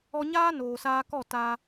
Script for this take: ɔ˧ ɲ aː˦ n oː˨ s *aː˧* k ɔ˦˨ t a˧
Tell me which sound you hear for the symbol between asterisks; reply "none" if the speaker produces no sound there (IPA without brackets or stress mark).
aː˧